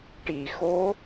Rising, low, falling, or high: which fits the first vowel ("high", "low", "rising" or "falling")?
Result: low